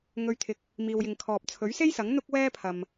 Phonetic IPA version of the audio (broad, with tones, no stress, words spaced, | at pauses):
ŋɵ˧ɥt̪ʰɪ˧k̚ | miː˨wjɪ˨ŋkʰɔː˨p̚ t͡sʰɵ˨˥ɥse˥jsɐ˨˥ŋ n̪ʊ˥k̚wɛː˥ pʰɐ˨m